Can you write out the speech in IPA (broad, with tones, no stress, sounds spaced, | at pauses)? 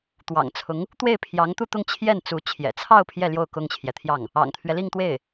t̪ w ɑ̰˨˩ ŋ t͡sʰ ʊ˧˥ ŋ | t̪ w e˥˩ ɪ̯ pʰ j ɑ˧˥ ŋ t̪ u˥˧ t̪ ʊ˥˧ ŋ t͡ɕʰ j ɛ˥˩ n t͡s u˧˥ t͡ɕʰ j ɛ̰˨˩ t͡sʰ ɑ˥˧ ʊ̯ pʰ j ɛ˥˧ l j o˥˩ ʊ̯ k ʊ˥ ŋ t͡ɕʰ j ɛ˨ t̪ʰ j ɑ˥˩ ŋ | ɑ̰˨˩ ŋ t̪ʰ ɥ ɛ˦ l i˥˧ ŋ t̪ w e˥˩ ɪ̯